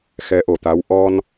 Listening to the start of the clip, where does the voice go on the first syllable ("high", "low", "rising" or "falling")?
rising